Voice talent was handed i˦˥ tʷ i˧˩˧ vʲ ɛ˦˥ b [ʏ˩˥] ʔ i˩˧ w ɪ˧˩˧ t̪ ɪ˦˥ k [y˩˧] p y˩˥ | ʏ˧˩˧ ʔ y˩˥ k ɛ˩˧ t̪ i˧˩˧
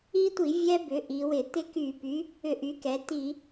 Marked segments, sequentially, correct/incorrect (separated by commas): correct, incorrect